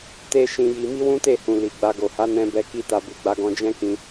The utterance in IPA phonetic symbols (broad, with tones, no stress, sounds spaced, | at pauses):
t e˦ ʃ ĩ˧ j i˧ m i˦ w ũ˦ t e˦˨ h ũ˨ l i˨ ɡ͡b a˧ ɡ o˨ h a˨˦ n ɛ̃˧ b ɛ˧ k i˧ t a˨ b u˨ ɡ͡b a˧ ɡ ɔ̃˧ d͡ʒ ɛ̃˦ k ĩ˧